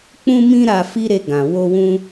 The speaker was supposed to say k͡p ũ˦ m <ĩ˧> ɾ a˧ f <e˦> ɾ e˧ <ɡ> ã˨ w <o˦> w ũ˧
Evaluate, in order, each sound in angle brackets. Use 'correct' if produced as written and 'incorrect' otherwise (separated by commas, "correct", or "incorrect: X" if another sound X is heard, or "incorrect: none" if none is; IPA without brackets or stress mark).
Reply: incorrect: ĩ˦, incorrect: i˦, correct, incorrect: o˧